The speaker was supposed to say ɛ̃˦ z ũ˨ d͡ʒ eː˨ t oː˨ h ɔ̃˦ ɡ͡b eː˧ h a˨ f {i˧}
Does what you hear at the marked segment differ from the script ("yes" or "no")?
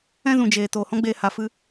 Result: yes